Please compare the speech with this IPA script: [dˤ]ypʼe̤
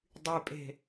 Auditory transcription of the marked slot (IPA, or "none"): dˤ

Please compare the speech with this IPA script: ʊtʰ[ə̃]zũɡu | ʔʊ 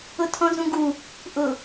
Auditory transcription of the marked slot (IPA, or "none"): ɔ̃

